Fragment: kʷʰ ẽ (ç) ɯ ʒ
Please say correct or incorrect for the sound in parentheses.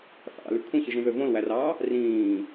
correct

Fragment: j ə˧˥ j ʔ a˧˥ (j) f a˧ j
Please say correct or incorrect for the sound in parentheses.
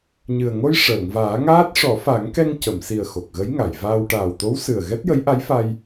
correct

